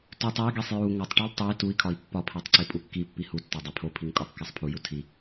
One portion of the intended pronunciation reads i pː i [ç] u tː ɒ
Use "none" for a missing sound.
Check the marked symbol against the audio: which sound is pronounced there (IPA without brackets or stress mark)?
h